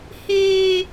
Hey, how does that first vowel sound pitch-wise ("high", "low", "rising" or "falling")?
high